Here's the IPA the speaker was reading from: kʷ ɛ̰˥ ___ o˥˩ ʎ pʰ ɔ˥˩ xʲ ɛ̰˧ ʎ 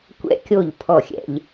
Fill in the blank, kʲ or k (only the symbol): kʲ